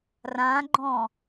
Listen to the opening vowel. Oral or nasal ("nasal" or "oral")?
nasal